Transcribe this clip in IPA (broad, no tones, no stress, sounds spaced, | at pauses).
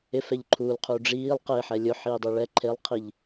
ɪ f ɛ ʎ ǃʰ uː l qʰ uː ɖ͡ʐ iː lˠ q ɪː ħ ɛ lʲ ʊ ħ iː dˤ e ɭ ɛ ǃʰ e lˠ qʰ i ʎ